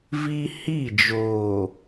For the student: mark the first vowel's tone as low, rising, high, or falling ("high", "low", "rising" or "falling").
high